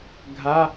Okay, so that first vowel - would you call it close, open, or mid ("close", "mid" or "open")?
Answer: open